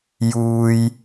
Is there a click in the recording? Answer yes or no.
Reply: no